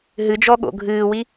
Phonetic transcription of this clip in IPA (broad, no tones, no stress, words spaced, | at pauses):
ɦɨd͡ʒɔɠo̰ ɡʱɨːwi